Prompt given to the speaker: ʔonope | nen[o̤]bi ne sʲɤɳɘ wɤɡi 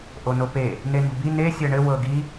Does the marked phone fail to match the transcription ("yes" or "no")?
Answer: no